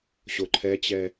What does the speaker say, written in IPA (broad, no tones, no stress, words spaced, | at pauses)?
ɕoǃʰɛt͡ɕɛ